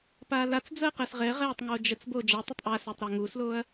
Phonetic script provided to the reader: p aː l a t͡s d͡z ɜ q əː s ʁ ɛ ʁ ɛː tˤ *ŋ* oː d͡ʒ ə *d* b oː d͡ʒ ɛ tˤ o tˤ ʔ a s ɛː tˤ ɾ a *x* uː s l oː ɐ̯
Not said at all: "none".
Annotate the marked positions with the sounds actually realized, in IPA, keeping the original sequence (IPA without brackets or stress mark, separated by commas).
ŋ, t͡s, ŋ